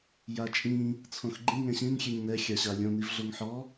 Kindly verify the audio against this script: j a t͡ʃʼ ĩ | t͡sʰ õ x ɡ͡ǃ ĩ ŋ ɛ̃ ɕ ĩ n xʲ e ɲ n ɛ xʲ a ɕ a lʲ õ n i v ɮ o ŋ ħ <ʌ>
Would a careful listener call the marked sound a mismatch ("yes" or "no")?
yes